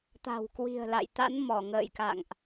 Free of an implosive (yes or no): yes